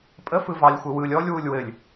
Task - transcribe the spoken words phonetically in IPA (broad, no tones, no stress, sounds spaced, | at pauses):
pʼ ə f ɯ v ɑ lʲ xʷ ɘ w ɯ lʲ ɔ lʲ w u lʲ w ɘ lʲ